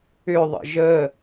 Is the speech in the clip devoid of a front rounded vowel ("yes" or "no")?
no